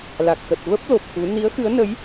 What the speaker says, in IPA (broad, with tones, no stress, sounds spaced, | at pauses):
l a˨˩ k̚ x ə˨˩ t̚ v ə˦˥ p̚ l o˨˩ p̚ x u˨˦ n i˨˦ ə̯ x ɨ˨˦ ə̯ n ə˨˦ j